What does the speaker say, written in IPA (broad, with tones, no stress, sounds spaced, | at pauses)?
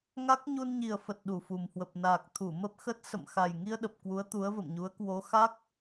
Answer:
ŋ a˦˥ k̚ ɲ u˧ n ɲ i˨˩ ə̯ f ə˨˩ t̚ ɗ u˨˩ f u˨˩ m h w ə˨˩ p̚ n aː˨˩ k̚ t̪ʰ u˧˩ m ə˦˥ p̚ x ə˦˥ t̚ s ə̰˧˨ m x a˨˩ j ŋ i˧ ə̯ ɗ ə˨˩ p̚ k w u˨˦ ə̯ t̪ u˨˦ ə̯ v ə̰˧˨ m ɲ u˨˦ ə̯ k w o˨˦ x a˦˥ k̚